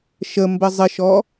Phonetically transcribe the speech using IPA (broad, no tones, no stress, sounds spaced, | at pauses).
ʃ ə m b ə zˤ ɪ ʃ ɔ